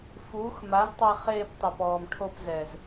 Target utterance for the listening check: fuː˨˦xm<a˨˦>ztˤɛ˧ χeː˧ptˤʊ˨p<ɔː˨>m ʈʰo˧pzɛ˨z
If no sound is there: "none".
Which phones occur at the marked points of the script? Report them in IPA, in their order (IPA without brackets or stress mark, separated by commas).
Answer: a˨˦, ɔː˨